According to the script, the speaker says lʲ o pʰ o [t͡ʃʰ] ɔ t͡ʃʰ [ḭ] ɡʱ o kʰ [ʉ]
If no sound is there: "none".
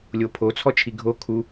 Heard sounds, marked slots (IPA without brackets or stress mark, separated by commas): t͡sʰ, i, u